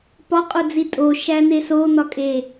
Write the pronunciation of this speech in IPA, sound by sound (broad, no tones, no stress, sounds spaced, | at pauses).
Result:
p ɒ qʼ o d͡z i tʼ o ʃ æ n̪ e s o n̪ ɒ kʼ e